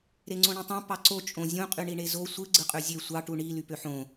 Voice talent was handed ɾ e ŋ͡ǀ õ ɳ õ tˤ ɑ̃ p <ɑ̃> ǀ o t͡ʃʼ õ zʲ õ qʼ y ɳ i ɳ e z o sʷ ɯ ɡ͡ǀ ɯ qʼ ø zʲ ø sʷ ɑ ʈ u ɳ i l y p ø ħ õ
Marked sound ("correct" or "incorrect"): incorrect